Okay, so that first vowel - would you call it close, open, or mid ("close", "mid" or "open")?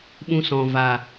close